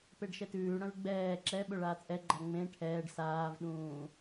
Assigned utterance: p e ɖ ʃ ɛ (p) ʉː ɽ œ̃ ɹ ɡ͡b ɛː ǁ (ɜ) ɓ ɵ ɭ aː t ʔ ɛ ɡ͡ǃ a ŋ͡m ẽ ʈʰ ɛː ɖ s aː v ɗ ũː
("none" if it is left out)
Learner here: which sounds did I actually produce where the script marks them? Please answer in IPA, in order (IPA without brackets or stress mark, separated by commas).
t, ɛ